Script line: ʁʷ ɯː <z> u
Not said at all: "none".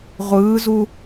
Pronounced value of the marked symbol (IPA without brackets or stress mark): z